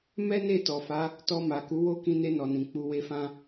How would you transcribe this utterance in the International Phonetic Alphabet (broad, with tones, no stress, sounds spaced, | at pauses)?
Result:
m ɛ˦ n e˦˨ t ɔ˨ f a˨˦ | t ɔ˧ m a˨ k u˨˦ w o˦ k ĩ˧ n e˧ n ɔ˨ n ĩ˨ k͡p u˧ w e˦ f ã˦